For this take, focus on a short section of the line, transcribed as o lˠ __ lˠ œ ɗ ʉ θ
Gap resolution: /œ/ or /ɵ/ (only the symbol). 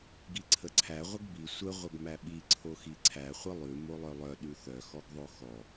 œ